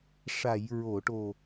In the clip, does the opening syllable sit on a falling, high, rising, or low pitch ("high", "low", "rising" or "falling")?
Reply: low